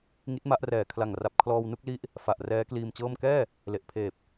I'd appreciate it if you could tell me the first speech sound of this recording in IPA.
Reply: ŋ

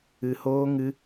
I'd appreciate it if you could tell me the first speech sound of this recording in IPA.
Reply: ɨ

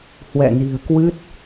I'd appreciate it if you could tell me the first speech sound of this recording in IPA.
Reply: h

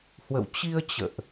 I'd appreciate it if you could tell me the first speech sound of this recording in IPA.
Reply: h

